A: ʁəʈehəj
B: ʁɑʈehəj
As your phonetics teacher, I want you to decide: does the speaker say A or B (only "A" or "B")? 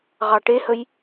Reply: B